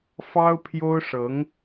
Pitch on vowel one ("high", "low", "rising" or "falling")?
high